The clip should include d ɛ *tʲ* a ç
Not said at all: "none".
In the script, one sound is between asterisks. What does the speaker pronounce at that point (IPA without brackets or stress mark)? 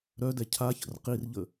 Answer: cʰ